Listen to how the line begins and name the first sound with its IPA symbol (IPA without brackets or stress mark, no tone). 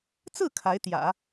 t͡s